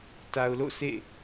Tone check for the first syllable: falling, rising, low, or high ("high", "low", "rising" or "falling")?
low